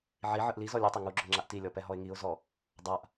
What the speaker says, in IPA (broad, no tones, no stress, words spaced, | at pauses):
ʕi ʕɯʔlizɔ lʲutˤe ŋuɡ͡ǁo ŋ͡ǁaʔtilʲɔ pɛɦɔɪ̯ŋiʊ̯zɔ | dˤaʔ